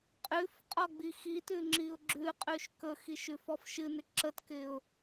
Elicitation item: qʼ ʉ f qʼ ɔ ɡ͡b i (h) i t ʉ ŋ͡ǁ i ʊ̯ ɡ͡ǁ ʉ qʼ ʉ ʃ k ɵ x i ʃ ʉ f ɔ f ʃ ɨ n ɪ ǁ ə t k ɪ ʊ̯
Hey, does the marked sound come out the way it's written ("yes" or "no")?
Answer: no